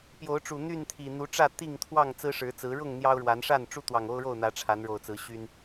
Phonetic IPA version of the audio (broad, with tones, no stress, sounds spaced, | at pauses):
p j o˨˦ ʊ̯ ʈ͡ʂ u˨˩ n̪ y˥˨ n t̪ʰ i˨˩ n̪ u˨˦ ʈ͡ʂ ä˥˨ t̪ i˥˨ ŋ t̪ʰ w ɑ˥˨ ŋ t͡s ɹ̩˦ ʂ ɻ̩˨˦ t͡s ɹ̩˨˦ ɻ ʊ˥˨ ŋ n̪ j ɑ˦ ʊ̯ ɻ w a˨˦ n ʂ a˥˨ n ʈ͡ʂ u˦ t̪ w ɑ˨˩ ŋ o˦ ʊ̯ ɻ o˥˨ ʊ̯ n̪ ä˨˦ ʈ͡ʂʰ a˨˦ n ɻ o˨˩ ʊ̯ t͡s ɹ̩˨˦ ɕ y˦ n